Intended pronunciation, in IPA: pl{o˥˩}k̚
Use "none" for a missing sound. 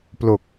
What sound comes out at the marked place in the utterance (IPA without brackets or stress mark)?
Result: o˨˩